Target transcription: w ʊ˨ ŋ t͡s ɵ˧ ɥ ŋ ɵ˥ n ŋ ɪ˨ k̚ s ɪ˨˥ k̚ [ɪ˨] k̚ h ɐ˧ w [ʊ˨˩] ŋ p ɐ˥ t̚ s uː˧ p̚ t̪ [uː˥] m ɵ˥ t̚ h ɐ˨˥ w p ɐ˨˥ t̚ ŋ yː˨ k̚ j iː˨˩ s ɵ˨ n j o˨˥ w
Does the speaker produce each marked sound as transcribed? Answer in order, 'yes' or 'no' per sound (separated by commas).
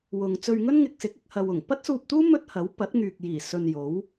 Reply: no, yes, yes